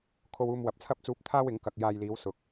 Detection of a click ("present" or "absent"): absent